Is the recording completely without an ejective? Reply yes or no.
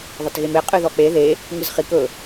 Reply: no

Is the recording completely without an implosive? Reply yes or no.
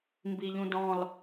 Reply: yes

